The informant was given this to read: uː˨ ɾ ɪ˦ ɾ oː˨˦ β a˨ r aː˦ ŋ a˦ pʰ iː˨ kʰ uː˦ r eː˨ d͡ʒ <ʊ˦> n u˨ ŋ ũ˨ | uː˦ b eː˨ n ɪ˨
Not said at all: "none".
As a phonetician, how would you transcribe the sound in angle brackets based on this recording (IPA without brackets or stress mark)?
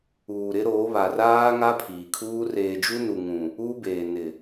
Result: u˦